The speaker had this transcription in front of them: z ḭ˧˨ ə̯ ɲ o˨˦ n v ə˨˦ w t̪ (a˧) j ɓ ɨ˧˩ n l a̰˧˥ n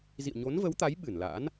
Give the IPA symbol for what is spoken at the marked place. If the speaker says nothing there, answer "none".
a˨˦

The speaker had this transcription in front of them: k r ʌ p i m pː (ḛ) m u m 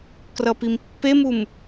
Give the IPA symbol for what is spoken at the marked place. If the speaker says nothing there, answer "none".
e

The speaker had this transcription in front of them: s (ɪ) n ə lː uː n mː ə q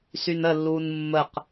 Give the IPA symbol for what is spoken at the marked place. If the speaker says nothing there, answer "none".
y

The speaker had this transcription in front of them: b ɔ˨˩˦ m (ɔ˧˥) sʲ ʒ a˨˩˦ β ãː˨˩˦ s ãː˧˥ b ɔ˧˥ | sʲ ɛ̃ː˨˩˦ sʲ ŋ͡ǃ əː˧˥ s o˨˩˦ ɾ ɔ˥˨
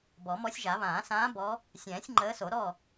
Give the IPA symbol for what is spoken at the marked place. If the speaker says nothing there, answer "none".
ɔ˧˥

